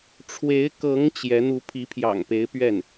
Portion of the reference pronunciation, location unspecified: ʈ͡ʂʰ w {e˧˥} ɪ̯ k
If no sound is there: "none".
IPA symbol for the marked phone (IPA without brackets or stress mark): e˧˥